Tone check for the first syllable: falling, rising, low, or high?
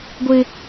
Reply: high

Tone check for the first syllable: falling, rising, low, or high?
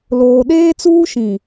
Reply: high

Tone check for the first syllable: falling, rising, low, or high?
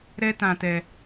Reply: high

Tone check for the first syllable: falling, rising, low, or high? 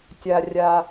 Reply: low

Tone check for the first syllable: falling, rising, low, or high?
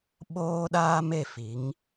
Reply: high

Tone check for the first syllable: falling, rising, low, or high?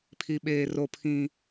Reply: high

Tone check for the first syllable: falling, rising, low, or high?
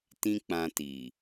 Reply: high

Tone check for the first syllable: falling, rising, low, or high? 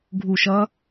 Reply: falling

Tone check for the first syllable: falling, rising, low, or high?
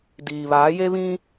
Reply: low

